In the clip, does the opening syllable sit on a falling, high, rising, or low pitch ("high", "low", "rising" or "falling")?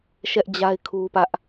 high